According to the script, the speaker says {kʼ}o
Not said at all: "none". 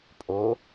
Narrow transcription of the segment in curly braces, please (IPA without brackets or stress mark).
pʼ